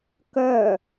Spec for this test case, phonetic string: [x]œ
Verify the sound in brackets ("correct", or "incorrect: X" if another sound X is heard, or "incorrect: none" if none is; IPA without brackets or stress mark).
incorrect: k